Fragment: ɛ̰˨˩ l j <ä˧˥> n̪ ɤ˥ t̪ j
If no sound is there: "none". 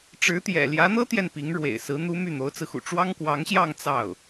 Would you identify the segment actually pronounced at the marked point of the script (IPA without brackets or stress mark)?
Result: ä˧˥